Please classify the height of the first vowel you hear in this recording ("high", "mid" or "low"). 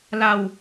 low